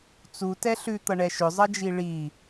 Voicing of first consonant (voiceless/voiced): voiceless